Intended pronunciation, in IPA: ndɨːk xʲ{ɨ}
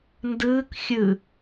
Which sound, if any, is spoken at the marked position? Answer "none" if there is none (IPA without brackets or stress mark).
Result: ɨ